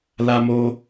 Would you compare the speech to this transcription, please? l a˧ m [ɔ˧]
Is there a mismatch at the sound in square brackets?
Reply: yes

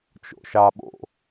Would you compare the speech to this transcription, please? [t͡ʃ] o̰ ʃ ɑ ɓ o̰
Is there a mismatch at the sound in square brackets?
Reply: no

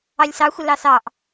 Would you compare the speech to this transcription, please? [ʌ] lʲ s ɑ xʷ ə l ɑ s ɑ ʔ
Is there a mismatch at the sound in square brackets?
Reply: yes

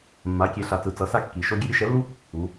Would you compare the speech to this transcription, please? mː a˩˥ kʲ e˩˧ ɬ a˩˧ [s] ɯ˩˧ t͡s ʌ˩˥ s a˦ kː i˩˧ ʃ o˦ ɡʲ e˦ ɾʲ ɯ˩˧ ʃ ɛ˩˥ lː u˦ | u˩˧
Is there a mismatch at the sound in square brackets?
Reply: yes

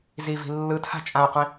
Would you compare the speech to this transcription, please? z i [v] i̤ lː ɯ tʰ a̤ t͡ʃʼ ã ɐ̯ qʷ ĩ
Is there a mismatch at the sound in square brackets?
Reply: no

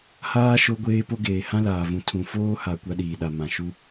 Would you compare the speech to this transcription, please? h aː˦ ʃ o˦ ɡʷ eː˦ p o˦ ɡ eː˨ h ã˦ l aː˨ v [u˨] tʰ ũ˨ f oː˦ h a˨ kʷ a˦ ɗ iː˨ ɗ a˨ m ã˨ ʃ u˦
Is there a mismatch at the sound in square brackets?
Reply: yes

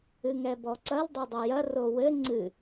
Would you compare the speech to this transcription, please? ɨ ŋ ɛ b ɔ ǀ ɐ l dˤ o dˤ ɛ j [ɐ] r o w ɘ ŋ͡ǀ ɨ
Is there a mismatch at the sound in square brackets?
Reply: no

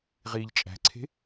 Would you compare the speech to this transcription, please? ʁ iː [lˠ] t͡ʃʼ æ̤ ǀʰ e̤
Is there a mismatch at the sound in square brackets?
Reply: yes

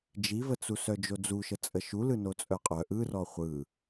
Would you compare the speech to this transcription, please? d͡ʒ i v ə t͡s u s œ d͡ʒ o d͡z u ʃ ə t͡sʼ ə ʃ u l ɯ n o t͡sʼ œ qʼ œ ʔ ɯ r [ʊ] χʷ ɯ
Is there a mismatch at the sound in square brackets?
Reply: yes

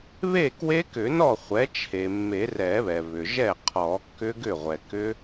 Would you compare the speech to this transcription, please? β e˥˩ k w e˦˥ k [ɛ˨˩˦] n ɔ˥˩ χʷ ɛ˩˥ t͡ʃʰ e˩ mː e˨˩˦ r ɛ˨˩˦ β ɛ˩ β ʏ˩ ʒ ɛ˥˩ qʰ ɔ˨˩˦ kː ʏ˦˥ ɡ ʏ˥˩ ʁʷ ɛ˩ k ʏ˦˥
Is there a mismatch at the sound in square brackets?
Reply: yes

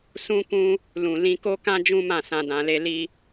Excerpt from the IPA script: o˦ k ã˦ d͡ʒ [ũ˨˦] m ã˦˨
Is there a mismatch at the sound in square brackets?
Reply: yes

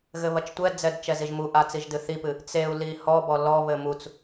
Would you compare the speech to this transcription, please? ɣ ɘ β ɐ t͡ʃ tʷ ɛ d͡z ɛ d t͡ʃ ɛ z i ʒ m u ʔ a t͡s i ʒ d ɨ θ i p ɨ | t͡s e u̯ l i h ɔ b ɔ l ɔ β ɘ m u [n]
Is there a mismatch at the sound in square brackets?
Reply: yes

